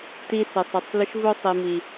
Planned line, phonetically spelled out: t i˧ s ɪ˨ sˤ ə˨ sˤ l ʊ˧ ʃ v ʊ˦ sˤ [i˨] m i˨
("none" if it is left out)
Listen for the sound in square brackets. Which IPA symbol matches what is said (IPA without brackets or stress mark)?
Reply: i˨